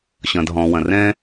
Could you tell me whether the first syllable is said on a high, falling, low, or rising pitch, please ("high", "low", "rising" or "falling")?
low